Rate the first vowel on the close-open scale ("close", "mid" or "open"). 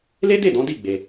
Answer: mid